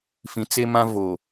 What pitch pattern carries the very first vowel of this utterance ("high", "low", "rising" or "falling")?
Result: low